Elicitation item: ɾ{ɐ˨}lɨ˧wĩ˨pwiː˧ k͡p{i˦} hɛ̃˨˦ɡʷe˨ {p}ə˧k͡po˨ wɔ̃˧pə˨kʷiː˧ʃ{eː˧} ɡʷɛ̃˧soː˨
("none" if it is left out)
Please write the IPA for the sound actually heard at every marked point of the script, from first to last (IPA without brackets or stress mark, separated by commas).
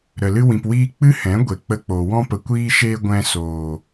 ə˨, ɨ˦, k͡p, eː˧